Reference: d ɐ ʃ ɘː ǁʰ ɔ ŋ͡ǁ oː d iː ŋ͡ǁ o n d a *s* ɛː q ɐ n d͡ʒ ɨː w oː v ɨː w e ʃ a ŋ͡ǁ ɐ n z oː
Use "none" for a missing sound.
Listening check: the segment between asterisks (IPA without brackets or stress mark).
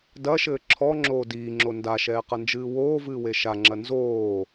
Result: ʃ